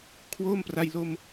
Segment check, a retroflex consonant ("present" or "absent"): absent